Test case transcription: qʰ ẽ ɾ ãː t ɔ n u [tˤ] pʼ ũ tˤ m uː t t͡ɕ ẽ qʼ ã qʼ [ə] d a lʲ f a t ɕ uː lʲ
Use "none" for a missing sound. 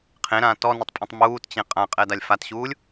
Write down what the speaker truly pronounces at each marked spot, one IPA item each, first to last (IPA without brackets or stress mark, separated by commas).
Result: tˤ, ɛ